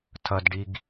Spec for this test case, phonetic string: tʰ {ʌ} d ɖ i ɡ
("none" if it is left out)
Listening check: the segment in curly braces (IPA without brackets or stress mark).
ʌ